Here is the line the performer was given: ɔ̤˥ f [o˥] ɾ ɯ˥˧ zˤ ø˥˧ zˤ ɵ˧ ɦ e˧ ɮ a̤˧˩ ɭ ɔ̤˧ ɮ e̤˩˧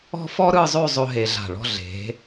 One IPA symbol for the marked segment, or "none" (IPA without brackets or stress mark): ɔ˥